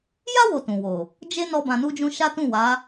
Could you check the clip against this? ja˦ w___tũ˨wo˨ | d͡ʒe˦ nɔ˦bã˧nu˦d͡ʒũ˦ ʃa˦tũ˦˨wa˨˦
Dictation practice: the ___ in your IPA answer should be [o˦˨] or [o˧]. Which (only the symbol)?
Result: o˧